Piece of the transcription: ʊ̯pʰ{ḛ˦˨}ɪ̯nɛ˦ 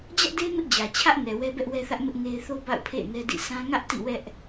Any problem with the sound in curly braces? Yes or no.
no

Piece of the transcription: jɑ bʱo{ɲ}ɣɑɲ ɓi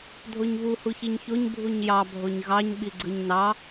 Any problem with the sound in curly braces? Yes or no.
no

